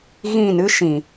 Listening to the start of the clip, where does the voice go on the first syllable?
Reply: falling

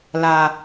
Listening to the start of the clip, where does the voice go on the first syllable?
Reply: low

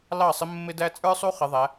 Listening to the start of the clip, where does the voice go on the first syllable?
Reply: falling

